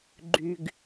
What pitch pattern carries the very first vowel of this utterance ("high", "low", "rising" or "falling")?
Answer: low